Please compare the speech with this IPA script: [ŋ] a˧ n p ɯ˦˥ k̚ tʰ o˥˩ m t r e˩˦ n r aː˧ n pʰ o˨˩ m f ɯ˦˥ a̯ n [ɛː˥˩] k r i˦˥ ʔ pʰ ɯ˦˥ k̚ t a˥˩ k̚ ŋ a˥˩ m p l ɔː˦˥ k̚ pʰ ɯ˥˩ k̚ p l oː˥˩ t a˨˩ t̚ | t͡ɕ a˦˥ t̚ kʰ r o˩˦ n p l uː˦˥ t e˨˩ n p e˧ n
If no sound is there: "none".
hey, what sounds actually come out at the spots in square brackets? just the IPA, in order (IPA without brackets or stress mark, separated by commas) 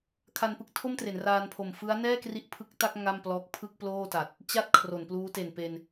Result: kʰ, ɛː˥˩